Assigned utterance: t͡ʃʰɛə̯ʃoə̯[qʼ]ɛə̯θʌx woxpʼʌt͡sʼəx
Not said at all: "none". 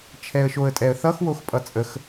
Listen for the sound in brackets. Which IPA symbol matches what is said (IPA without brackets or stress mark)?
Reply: tʼ